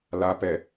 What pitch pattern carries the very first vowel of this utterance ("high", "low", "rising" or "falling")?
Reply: low